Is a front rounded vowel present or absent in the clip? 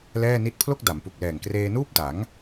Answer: absent